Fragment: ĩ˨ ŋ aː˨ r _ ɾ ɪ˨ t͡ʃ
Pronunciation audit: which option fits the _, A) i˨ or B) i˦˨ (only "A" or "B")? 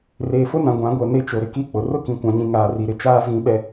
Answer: A